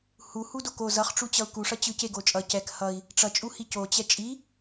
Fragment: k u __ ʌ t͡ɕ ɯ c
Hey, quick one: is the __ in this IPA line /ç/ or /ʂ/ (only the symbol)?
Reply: ʂ